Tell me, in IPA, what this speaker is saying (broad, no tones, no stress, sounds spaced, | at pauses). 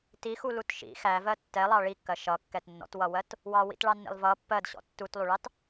t i x u l u t ʃ ḭ x æ v ɜ tː ɛ lˠ ɑ ɭ i kː ɜ ʃ ʌ kː ɛ t nː ɔ̰ t w ʌ w ɜ t | w ɑ w ḭ t ɭ ɑ nː ḭ lˠ v ʌ pː ɜ d ɕ ɔ̰ tː u t lˠ u ɭ ɑ t